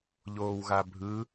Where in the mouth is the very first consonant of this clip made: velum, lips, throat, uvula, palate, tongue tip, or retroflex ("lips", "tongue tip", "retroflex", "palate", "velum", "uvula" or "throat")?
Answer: palate